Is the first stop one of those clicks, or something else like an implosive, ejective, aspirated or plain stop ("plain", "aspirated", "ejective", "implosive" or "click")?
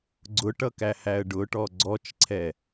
click